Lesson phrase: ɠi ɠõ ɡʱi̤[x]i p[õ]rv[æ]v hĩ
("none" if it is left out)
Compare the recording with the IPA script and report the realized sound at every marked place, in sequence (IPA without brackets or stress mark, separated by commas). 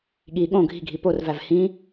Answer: ɡʱ, o, æ